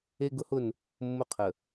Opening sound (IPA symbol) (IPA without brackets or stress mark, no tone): e